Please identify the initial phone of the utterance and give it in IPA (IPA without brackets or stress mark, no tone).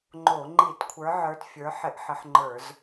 ŋ͡ǃ